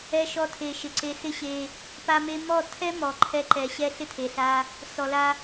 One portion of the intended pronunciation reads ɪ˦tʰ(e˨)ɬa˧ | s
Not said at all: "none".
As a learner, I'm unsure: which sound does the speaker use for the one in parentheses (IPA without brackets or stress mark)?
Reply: e˨